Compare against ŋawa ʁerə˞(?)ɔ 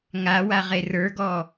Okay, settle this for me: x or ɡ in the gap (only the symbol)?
ɡ